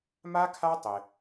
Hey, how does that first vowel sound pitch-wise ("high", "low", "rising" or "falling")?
high